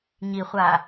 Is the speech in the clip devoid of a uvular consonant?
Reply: no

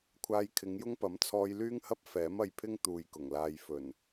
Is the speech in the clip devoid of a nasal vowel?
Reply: yes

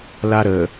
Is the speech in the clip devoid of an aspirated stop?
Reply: yes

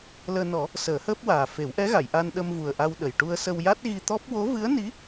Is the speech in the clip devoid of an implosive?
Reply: no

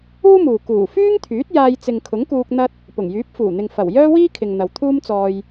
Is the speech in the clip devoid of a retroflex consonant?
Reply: yes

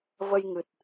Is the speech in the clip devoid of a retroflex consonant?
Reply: yes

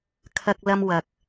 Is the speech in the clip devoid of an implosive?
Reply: yes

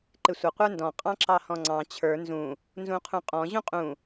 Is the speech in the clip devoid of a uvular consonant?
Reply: no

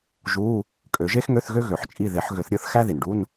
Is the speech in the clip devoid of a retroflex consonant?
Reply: no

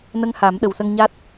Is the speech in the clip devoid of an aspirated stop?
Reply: yes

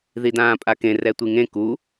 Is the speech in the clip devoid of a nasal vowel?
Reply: no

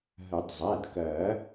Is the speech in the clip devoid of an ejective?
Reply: yes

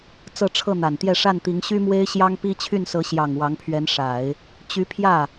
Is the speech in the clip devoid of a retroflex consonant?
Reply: no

